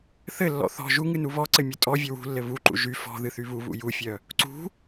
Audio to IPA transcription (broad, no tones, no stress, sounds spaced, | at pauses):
θ ɘ lː ɔ̰ θ ɔ̤ ʒ u ŋ ɨ n u β ɔ ǀ ɘ mʲ ə tʼ ɔ vʲ ɘ w ṳ lː ɘ β u ǃ ṵ ʒ y f ɔ̤ ð ɨ θ y β u β ṵ j u fʲ œ | ǀ ṳ